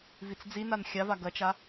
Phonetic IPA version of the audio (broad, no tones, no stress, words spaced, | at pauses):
vit͡sd͡zinan xʲava ɡɐt͡ʃa